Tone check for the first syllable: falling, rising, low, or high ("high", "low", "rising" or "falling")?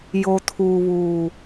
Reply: low